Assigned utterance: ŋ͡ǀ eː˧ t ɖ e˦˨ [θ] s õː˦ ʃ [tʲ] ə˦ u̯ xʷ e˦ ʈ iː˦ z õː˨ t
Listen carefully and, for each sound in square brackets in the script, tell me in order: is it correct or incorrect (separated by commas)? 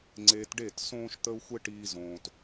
incorrect, incorrect